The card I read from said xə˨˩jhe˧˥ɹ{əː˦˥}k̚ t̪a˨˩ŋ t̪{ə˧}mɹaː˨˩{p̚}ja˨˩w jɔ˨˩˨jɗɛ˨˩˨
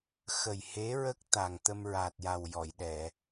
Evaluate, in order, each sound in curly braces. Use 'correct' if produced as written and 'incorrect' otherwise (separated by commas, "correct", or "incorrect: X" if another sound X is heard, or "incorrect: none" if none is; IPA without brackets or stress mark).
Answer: incorrect: ə˦˥, correct, incorrect: t̚